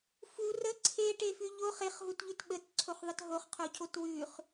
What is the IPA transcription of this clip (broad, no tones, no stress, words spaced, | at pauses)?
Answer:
fu rə ǀʰeʈefʉ ʎoχ eχɦutʎʉt ɓətǀʰoχðˤət ɦoχqʰocʰot wʉχ